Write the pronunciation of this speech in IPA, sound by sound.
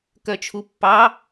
kœt͡ʃʰupːɑ

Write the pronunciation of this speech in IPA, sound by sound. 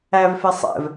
ævfe sˤɛ̰v

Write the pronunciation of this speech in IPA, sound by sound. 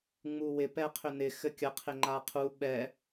ŋ͡muwɪ pɛqʰʏnɪ xɘkʲə qʰɪŋ͡ǃaqʰu ɓɛ

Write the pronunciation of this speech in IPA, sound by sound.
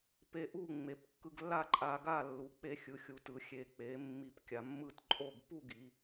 pe˧ʔu˥˨ ŋ͡me˩˧p kːɯ˧ɡlːa˥˨ ǃʼa˧ɡa˥˨ lːu˩˧k͡pe˧xʲɯ˩˧ xʲu˩˧tɯ˩˧ xʲe˩˧k͡pe˩˧ mːi˧p kʲa˩˧mːɯ˥˨t ǃʼo˥˨ɡ pu˥˨ɡi˩˧

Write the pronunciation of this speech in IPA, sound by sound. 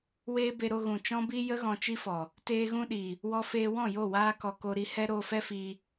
weː˦ be˧ɾo˧ ɣũ˨t͡ʃɔ̃˦bi˦ jə˦ ɣɔ̃˧t͡ʃi˦fɔ˨ | teː˧ɣũ˧ɗi˨ | wɔ˧feː˧wɔ̃˦˨jo˦˨ waː˧kɔ˨ ko˧ɾi˨˦hɛ˦ ɾoː˧fɛ˦ fiː˧

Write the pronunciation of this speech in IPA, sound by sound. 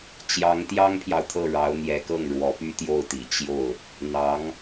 t͡ɕjɑ˧˥ŋt̪jɑ˥ŋpʰjɑ˨ʊ̯ t̪ʰɤ˥˩ɻɑ˧˥ʊ̯n̪jɛ˧˥kɤ˥˩ŋ ɻwɔ˧˥py˥t̪jo˥˩ʊ̯t̪i˨˩ t͡ɕjo˥˩ʊ̯ | n̪ɑ˧˥ŋ

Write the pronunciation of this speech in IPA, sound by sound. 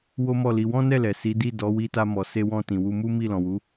wo˦mɔ˦˨li˧ wɔ̃˦nɛ˦˨lɛ˨ si˨˦di˦˨dɔ˨˦ wi˧ta˧mɔ˨ se˧wɔ̃˧ tĩ˨wu˧mu˦ mi˦˨lɔ̃˨wu˨˦

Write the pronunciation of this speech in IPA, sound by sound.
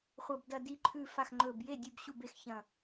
χʷɐ˧˩b dɐ˧˩di˧˩ǃʰʉ˧˩fa˧˩x ŋ͡ǃɵ˧˩b je˥˩dʲʉ˧˩b ɕu˥˩be˥˩xçɐ̃˧˩

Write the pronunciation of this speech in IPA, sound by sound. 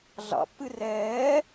ɮɑ̰pːɨ rɛː

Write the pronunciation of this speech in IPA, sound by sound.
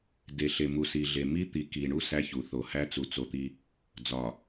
de˨ɬe˨ mu˨si˨ɮe˨ mi˦t̪i˨ki˨ɳu˦ sæ˦çu˨˦ θo˨hæ˦ t͡su˨t͡so˨ t̪i˦ | d͡zɒ˨

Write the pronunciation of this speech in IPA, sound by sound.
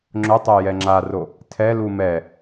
ŋ͡ǁʊtˤɛ jɛŋ͡ǁaro | tʰɛlu mɛ

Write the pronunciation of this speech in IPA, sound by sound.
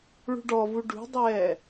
ɭṳɖɔvu ɖṳdˤɛː

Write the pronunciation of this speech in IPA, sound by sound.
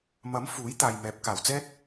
mɐ˨˥m fuː˨˥j t̪aː˨jmɛː˨˥p̚kaː˨˩w t͡sɛː˧t̚

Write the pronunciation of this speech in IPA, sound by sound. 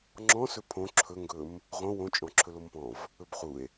ŋ͡ǁɔ̃sɵ pʰõ ǁʰɵŋɡɵm | ʁõ wõt͡ʃʼɔ̃ ǁʰɵlompɔ̃v | ɵbχue̯

